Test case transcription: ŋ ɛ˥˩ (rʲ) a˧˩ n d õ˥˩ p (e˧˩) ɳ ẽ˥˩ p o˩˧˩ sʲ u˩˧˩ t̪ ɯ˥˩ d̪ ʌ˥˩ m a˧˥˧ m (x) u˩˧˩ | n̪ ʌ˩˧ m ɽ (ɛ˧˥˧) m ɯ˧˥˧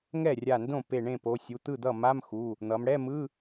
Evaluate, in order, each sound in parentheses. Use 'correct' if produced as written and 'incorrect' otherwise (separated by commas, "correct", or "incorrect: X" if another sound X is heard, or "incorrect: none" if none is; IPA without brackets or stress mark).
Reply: correct, correct, correct, correct